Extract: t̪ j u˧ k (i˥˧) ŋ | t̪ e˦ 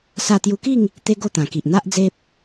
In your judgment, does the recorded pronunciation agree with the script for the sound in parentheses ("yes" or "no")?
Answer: yes